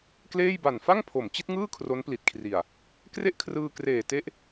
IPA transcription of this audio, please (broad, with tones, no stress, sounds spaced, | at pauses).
k l eː˥˩ j b a˨˩ n f a˥˩ ŋ pʰ o˩˦ m t͡ɕ i˦˥ t̚ ŋ ɯː˥˩ kʰ r o˦˥ n p l i˨˩ t̚ kʰ r i˨˩ a̯ | k r e˥˩ ʔ kʰ r ɯː˧ k r eː˨˩ t e˦˥ ʔ